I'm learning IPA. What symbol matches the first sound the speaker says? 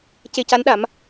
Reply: c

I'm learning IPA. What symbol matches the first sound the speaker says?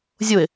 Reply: zʲ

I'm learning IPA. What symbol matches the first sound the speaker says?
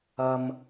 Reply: ɐ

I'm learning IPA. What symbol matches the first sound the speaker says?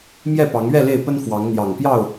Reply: m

